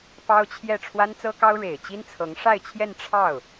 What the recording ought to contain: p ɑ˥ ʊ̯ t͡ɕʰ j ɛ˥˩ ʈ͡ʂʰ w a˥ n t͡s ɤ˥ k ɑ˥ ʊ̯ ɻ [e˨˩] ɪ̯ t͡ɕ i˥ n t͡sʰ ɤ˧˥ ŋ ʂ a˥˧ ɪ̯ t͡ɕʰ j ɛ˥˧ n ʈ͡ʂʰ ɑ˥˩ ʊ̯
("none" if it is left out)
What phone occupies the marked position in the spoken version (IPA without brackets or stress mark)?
e˨˩